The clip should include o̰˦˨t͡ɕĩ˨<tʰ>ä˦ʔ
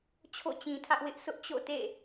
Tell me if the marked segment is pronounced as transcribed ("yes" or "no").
yes